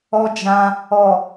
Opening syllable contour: high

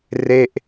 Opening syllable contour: falling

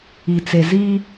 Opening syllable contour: low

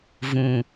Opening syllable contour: low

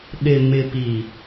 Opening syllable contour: low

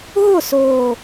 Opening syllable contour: falling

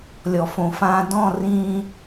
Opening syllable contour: low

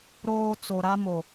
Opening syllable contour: high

